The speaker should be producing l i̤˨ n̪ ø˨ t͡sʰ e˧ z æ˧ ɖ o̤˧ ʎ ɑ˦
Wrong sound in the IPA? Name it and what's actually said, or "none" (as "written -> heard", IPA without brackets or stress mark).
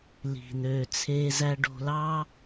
ʎ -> l